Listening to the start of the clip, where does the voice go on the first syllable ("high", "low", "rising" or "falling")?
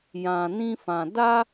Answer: low